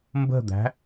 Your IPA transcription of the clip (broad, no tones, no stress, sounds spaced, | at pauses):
m b ə̤ d̪ æ̤